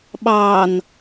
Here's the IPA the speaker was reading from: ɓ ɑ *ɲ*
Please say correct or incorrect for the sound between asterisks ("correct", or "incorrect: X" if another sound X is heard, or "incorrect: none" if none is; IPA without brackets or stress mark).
incorrect: n